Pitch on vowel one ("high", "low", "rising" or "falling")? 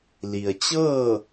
low